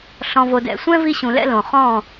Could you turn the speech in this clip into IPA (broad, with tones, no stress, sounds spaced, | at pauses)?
ɬ ɔ̃˨ v o˨ d ɛ̰˨ sʷ ɛ̃˦ v i˦ ɕ ũ˨ l ɛ̰˦ l õ˨ χ ɔ̃˦˨